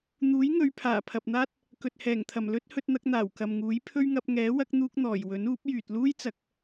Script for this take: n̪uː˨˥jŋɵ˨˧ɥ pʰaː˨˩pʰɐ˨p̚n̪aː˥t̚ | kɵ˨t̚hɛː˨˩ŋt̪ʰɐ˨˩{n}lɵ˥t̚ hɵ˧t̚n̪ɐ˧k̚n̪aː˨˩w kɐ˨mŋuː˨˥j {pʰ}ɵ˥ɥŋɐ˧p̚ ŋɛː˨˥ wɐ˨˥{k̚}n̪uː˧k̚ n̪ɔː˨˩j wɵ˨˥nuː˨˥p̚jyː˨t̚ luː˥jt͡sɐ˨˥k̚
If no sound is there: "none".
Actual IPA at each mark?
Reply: m, pʰ, k̚

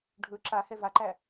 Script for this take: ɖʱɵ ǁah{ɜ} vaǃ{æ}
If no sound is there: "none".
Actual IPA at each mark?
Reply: ɛ, æ

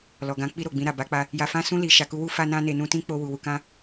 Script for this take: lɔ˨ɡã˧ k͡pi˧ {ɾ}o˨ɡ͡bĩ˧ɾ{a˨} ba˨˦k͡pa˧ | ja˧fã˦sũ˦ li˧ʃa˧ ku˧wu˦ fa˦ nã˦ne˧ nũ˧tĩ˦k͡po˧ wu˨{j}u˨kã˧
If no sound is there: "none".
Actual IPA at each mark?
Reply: ɾ, a˨, w

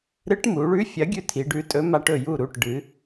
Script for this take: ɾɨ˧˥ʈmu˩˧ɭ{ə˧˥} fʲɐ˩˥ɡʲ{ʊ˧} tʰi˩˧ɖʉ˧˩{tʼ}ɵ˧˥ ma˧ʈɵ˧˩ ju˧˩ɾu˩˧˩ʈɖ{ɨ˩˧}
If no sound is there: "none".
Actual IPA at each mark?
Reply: ʉ˧˥, ʉ˧, tʼ, ɨ˩˧

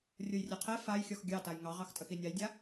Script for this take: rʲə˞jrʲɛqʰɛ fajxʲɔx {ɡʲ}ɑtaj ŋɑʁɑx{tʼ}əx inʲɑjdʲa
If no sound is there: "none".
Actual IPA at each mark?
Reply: ɡʲ, tʼ

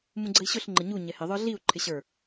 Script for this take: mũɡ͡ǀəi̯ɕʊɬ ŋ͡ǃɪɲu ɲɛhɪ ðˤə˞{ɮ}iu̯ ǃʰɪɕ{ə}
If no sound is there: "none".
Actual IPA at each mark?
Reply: ɮ, ə˞

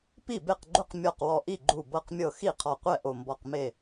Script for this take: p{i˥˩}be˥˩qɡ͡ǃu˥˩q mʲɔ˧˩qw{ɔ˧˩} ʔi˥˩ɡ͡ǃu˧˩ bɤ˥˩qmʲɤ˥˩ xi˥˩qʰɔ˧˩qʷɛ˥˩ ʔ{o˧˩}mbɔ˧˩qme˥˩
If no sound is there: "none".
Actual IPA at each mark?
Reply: i˥˩, ɔ˧˩, o˧˩

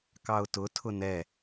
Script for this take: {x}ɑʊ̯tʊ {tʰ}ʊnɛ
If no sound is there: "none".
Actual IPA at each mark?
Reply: k, tʰ

